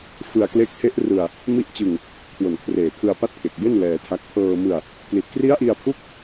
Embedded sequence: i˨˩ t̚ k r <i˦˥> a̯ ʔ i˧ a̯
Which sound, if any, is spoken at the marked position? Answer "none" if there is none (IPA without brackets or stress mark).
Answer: i˦˥